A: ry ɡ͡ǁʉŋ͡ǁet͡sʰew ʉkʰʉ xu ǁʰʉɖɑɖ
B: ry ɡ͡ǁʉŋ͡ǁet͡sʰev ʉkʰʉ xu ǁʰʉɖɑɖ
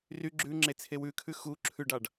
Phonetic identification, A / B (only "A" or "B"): A